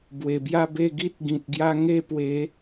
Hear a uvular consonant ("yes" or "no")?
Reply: no